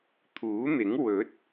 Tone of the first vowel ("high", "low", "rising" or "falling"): rising